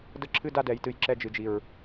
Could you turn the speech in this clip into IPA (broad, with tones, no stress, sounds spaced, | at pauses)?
d ə˧ ǁʰ ɨ˦ d a˦ d ɛ˨ j t ɨ˨ j ǁ ɛ˧ d͡ʒ ɨ˨ d͡ʒ i˨ ɹ